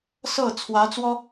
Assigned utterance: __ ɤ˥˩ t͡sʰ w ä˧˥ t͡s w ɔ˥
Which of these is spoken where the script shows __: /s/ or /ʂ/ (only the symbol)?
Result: s